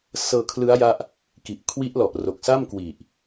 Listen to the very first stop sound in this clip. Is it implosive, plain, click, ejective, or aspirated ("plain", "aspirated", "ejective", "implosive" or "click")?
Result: aspirated